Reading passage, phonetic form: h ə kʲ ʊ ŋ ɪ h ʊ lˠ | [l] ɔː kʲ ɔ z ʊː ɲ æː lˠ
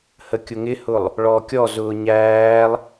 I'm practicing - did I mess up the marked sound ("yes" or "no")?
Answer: yes